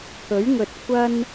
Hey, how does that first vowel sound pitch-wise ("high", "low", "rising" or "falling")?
rising